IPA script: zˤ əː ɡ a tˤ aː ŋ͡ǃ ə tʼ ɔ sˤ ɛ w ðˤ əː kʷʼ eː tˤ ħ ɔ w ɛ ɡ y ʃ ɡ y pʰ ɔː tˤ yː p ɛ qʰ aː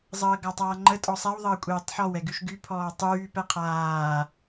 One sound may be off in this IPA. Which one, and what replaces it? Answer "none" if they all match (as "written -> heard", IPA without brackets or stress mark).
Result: none